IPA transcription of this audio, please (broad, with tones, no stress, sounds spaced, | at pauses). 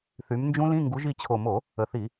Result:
θ y˨˦ m n d͡ʒ ũ˦˥ l ĩ˧˥˧ ŋ ɡ u˨˦ ʒ i˨˦ t͡ɕʰ o˨˩ m o˧˩˧ | ə˨˩ θ i˧˩˧